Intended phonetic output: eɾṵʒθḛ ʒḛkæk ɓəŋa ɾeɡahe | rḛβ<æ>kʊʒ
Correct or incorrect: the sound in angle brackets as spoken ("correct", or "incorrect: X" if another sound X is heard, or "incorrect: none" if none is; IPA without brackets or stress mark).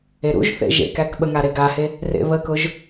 incorrect: ə